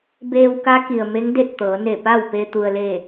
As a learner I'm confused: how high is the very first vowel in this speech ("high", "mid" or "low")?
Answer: mid